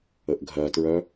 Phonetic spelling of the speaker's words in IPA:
ə ʔ ɡʱ ɜ t ɹ œ

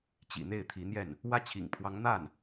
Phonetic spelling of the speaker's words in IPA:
t͡ɕ ḭ˨˩ n̪ e˥˩ ɪ̯ t̪ʰ i˧˥ n̪ j ɛ˥˩ n | w ä˥˩ t͡ɕʰ ḭ˨˩ ŋ pʰ w ɑ˧˥ ŋ n̪ a˥˩ n

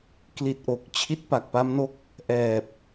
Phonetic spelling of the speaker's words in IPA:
k l i˨˩ t̚ ʔ o˨˩ k̚ t͡ɕʰ i˥˩ t̚ p a˨˩ k̚ p a˦˥ m n o˦˥ k̚ | ʔ ɛː˨˩ p̚

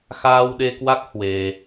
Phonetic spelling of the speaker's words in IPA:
x aː˧ w ɗ e˧ k w a˦˥ k̚ h w e˧

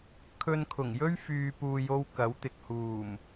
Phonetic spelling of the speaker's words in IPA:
kʰ ɵ˧ n kʰ ʊ˨˩ ŋ j ɵ˥ ɥ f yː˨ p uː˨ j o˧ w k ɐ˨˥ w t̪ ɪ˨ k̚ h uː˨˩ m

